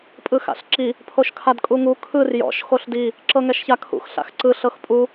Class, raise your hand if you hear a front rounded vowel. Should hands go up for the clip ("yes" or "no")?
no